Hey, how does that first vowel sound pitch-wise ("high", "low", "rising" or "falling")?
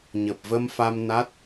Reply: low